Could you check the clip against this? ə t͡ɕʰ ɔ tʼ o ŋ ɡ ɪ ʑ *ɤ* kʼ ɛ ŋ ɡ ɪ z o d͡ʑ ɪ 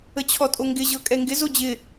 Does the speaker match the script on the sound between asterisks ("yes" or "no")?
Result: yes